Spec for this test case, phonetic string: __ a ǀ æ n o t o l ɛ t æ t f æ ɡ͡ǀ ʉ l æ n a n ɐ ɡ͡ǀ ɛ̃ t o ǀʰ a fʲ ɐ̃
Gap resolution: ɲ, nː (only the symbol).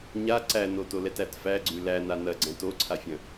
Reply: ɲ